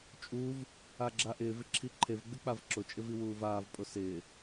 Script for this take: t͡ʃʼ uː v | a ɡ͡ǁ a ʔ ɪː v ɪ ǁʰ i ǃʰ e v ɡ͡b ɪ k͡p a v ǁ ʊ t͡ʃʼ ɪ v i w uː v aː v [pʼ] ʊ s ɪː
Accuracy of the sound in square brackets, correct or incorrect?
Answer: correct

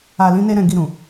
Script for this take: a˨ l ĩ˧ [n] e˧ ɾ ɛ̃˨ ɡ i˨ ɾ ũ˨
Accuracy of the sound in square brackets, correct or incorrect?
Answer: correct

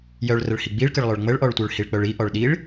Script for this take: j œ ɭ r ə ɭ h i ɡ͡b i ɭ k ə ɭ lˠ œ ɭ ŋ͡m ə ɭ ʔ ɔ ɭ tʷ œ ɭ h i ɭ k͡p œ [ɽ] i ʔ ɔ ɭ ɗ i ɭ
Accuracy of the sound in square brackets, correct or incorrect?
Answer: incorrect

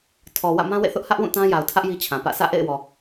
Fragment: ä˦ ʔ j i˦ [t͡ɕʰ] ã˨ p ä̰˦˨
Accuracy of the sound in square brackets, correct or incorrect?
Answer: correct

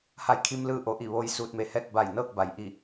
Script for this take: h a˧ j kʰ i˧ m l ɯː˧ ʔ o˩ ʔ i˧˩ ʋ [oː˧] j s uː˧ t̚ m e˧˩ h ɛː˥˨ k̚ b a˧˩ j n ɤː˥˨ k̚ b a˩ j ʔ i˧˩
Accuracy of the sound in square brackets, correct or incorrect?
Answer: correct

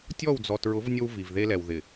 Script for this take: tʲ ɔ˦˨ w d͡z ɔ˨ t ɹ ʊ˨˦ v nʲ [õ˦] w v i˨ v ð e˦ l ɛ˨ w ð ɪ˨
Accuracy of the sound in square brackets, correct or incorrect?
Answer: incorrect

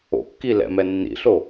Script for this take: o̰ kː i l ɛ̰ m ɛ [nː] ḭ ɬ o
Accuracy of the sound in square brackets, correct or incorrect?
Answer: correct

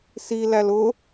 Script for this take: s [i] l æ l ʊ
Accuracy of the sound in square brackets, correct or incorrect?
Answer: correct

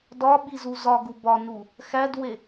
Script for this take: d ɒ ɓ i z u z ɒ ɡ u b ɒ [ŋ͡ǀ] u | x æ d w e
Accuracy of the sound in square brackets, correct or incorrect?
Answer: incorrect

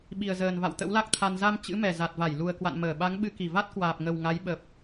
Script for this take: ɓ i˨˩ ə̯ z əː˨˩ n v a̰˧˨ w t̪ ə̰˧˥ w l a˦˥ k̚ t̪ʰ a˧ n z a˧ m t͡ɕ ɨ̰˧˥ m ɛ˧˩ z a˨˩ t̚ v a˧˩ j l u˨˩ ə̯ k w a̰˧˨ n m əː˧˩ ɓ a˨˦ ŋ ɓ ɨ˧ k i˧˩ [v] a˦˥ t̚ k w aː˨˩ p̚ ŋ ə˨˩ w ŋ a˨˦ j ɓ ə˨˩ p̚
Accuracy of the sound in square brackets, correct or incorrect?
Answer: correct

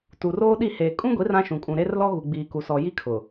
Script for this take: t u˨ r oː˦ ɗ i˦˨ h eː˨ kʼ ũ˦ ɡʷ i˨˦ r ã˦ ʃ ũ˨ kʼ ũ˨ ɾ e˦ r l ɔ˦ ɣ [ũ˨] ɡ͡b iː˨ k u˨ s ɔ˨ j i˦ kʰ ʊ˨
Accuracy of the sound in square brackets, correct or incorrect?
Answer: incorrect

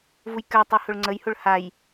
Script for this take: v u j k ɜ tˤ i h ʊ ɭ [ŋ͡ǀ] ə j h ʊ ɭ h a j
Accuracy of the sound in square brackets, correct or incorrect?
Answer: correct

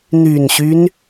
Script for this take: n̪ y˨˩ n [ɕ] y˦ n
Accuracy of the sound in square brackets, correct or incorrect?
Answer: correct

